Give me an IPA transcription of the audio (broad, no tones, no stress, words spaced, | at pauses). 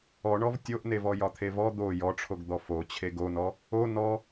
ɔɳɔv tʲoʔnevɔ jɒt̪ʰevɔ d̪o jɔʈ͡ʂʰoɡd̪ɔ fo t͡ɕʰeɡonɔ | o nɔ